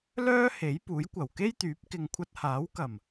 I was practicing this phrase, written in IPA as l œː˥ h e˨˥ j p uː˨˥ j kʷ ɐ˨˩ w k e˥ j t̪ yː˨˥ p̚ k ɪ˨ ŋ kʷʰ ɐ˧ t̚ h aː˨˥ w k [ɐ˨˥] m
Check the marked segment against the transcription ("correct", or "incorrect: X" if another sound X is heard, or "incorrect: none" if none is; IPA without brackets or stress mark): incorrect: ɐ˨˩